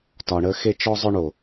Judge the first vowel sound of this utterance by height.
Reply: low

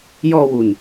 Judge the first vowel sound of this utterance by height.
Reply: mid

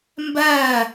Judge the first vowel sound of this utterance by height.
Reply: low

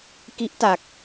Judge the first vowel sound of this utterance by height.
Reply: high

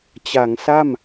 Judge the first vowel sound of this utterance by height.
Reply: low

